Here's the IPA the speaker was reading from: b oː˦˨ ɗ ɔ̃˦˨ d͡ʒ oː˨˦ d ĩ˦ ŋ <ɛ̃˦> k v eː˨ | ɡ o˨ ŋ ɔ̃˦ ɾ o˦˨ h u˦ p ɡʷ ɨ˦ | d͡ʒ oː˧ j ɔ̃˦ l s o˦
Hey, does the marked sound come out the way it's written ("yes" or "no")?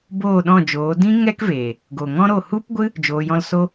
no